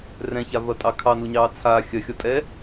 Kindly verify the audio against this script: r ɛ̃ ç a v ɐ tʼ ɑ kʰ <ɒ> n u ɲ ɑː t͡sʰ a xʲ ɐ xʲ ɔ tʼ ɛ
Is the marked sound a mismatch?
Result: yes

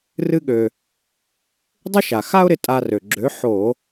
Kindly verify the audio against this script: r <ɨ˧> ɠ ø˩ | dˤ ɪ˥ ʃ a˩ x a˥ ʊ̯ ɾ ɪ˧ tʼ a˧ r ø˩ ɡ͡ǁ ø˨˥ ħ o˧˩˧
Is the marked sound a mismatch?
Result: no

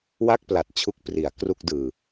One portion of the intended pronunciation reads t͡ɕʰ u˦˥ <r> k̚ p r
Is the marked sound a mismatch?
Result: yes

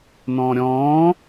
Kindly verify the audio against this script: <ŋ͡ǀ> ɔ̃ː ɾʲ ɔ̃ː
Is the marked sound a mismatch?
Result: yes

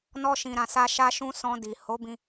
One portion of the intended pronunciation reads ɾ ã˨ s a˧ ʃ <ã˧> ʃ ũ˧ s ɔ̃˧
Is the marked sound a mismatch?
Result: yes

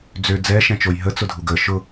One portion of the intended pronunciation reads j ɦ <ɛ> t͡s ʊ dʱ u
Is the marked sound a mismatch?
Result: yes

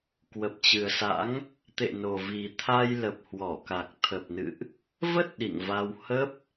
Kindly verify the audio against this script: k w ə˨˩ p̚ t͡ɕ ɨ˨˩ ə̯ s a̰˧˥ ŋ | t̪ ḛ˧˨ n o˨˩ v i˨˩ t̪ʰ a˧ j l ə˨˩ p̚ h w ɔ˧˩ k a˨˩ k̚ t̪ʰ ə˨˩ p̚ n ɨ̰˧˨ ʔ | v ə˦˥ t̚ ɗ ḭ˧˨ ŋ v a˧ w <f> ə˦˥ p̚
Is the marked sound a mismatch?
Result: yes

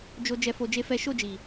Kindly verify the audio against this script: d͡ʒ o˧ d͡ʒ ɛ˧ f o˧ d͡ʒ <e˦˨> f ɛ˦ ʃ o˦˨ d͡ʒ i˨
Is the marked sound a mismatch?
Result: yes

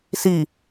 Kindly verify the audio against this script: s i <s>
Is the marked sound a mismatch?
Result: yes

